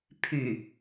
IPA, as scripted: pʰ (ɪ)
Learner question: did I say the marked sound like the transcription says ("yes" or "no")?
no